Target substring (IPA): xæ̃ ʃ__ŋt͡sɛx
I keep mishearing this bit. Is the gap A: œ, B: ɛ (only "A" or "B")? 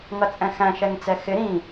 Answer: B